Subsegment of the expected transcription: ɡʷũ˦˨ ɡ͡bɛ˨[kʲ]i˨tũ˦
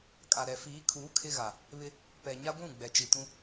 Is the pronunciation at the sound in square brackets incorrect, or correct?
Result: incorrect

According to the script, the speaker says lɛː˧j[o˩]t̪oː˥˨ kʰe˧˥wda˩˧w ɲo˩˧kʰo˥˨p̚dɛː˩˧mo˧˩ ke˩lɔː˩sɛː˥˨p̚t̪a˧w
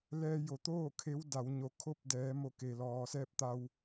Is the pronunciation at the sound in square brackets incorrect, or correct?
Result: correct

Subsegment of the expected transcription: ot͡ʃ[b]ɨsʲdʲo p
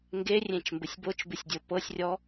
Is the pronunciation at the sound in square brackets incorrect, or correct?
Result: correct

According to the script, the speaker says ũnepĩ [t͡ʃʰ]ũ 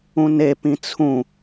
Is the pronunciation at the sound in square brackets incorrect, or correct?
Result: incorrect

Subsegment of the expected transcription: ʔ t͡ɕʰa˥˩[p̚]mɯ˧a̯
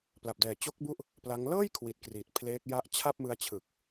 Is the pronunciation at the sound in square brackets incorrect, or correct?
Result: correct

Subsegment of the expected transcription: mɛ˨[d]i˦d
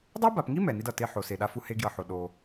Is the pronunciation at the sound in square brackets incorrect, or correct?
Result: incorrect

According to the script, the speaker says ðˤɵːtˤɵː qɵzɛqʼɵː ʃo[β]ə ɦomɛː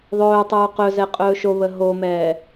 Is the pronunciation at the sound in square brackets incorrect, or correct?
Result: correct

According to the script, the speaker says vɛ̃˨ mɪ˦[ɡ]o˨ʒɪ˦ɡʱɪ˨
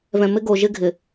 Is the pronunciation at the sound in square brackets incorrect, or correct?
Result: correct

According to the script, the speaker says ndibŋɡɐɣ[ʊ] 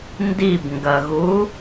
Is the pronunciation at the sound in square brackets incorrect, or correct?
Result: incorrect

